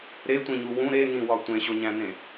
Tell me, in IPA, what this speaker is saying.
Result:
ɾetʷĩɲu wũ ɾenĩwɒ tʷẽɕoɲæ̃nẽ

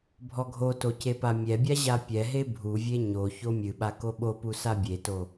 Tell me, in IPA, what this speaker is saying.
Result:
bʱɔɡʱoto cepamʲɛbʲa ʑapʲɛɦe bʱuvʲe ɲo çomʲɨɓa koɓopu sabʲeto

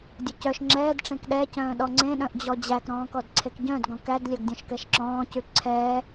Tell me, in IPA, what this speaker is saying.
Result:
dʲɵcœʃ ŋ͡ǁɛːd ʈ͡ʂẽkɗɛ cœ̃ːɗɔŋ͡ǀẽ ɗœ̃ʔd͡ʑɔd͡ʑæk ɾɔ̃ːkɔdǀʰekɟœ̃d ɡɔ̃kæd lʲœɡdʲɔ̃ʃkɛʃǁɔ̃ː cʉǀʰɛː

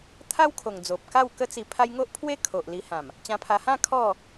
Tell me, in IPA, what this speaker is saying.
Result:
t̪ʰa˦wkʰo˨˩ŋ d͡zo˨p̚ka˥˧wkə˦ t͡si˧ pʰa˦j ŋo˦ʔpʰwe˦ kʰo˨ʔli˧hã˨˩m | t͡ɕã˧pʰa˧ hã˥˧ kʰɔ˥˧

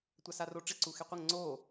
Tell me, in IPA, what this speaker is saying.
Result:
tʷasaroʈ͡ʂɪ ǀuxeqʷəŋ ŋ͡ǀo

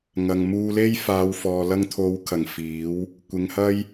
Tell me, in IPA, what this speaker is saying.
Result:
ŋɐ˨ŋmuː˧le˥j faː˨˧wfɔː˨ lɐ˧ŋt̪ʰo˨˧wkʰɐ˨˩ŋ fiː˨˥w | kʷɪ˨ŋ hɐ˥j

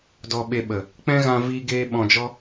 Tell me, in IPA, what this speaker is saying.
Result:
dɔ˧ɓe˧ɓə˨ | k͡pɛ̃˦ɣã˧ vi˦ ɡeː˦ɓɔ̃˧d͡ʒɔ˦

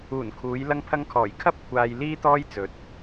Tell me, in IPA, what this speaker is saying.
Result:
uː˨˩nkʰuː˨˧j lɐ˧ŋpʰɐ˧ŋkʰɔː˨˩j kʰɐ˥p̚ kʷʰaː˧j liː˥t̪ɔː˥j t͡sɵ˨t̚

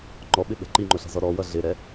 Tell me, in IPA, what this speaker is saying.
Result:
ŋ͡ǃɔɓɪɓɛ̤ ǃiŋ͡ǃʊɬɛ̤zɔ ɾɔwʌ ɮɪɾɛ

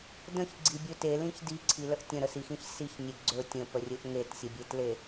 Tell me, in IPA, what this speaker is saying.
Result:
də̃çɡ͡ǀibʲɵ telĩç diǀʰiləʔ tʲə̃ɾəsixĩç siçnʲe ɡ͡ǀɵ tʲə̃pərʲɵʔ ŋetsʲəbʲetle

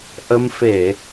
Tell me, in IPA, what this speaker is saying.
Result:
ʔə˧mfe˧˩˨

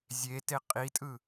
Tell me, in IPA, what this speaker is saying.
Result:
zʲete qʼitʼɯ

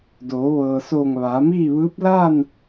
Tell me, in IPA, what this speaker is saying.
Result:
doː˩˧ʋɤː˩soː˧˩ŋ ʋaː˩˧miː˥˨ʋɯː˧˥p̚ laː˥˨n

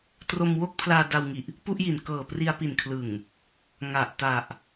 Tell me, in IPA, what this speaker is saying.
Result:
tro˧mwo˥˩k̚pʰlaː˧ da˧wŋi˨˩ʔ | pu˥˩ʔji˨˩n kɤː˨˩pri˧a̯pi˨˩n kʰlɯ˨˩ŋ | ŋa˨˩ʔ ta˨˩ʔ

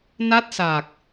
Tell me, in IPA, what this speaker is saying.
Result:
na˦˥t̚saː˨˩k̚

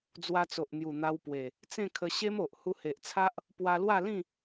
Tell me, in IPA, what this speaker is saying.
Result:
d͡zwa˧t͡so˨ʔn̪ju˨˩ n̪a˧wpwe˨˩ | t͡sẽ˥˧kʰə˧ ɕe˦m o˨ʔ hu˧he˨ʔt͡sʰa˦ʔ | pwa˧lwa˥˧lĩ˥˧

